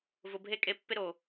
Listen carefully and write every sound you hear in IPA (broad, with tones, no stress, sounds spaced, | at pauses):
v ʊ˨ bʱ e˦ kʼ e˦ pː ɪ˥ ɾ o˩